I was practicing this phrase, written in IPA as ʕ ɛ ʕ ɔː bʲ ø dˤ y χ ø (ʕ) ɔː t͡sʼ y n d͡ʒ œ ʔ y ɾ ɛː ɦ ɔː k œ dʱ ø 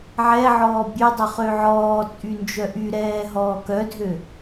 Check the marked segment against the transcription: correct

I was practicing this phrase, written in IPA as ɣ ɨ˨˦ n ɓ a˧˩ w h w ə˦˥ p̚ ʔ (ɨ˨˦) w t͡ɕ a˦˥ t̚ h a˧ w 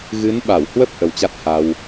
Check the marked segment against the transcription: incorrect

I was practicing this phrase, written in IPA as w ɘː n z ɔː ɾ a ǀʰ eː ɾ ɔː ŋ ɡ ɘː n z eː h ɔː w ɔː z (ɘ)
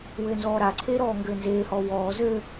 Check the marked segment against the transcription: correct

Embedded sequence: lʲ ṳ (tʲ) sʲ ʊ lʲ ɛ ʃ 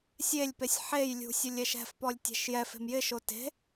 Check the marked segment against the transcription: incorrect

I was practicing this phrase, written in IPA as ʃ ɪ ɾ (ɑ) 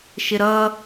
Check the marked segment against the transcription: incorrect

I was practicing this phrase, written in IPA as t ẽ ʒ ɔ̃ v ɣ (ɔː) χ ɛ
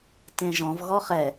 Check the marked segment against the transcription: incorrect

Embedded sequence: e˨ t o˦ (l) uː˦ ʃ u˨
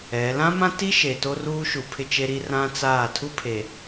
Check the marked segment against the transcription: incorrect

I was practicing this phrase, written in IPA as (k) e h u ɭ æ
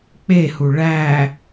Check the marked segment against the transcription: incorrect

